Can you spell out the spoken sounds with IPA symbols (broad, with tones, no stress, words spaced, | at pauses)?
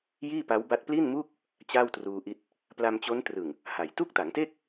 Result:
jiː˥˩pa˦˥wba˦˥t̚ pli˥˩nmuː˥˩k̚ | t͡ɕaː˥˩wtruː˧ʔi˦˥t̚ | pla˧mt͡ɕo˦˥ntrɯ˨˩ŋ | ha˨˩j tu˥˩k̚ta˩˦ŋte˥˩k̚